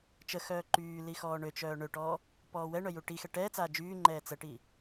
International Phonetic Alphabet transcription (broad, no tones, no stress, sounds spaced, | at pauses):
t͡ʃ ə x œː ǃ yː l i x ɔː ɳ ø t͡ʃ œː ɳ ø ʈ ɔː | p ɔː w ɛ ɳ œ j u ʈ i x ɛ ʈ ɛː t͡s aː d͡ʒ yː ŋ͡ǃ ɛː t͡s ə ʈ i